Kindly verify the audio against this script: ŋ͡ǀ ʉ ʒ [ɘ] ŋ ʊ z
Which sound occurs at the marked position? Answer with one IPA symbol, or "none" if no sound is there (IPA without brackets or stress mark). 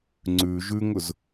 ʉ